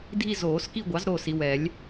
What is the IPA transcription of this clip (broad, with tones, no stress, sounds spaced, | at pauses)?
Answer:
dʱ i˦˨ z oː˨˩˦ s k i˦˨ ɡʷ ɑ˩˥ z ɾ o˦˨ s i˨ w ɛ˨˩˦ lʲ